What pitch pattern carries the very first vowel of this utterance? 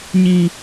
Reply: low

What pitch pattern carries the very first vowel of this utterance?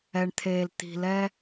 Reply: low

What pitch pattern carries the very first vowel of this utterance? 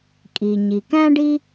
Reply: low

